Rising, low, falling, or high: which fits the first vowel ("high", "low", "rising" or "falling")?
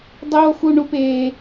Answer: high